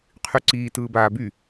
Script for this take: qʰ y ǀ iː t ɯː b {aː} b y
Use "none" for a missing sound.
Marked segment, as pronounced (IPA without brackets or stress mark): aː